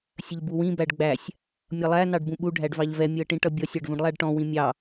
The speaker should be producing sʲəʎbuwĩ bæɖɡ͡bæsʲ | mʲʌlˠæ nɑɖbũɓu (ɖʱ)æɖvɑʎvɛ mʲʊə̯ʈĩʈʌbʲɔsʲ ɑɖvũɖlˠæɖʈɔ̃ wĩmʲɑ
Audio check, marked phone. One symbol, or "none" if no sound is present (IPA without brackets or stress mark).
ɖʱ